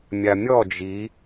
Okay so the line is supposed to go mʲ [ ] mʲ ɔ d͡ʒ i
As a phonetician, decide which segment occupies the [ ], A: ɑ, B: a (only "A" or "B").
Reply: B